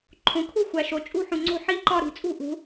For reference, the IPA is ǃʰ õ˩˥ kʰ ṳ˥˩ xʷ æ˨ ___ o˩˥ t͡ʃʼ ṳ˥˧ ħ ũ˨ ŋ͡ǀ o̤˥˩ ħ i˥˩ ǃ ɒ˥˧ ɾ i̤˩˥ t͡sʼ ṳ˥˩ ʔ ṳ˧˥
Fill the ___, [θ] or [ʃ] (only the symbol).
ʃ